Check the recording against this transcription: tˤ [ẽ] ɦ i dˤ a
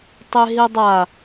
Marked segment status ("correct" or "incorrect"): incorrect